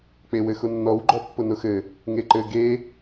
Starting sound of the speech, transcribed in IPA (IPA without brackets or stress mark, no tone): k͡p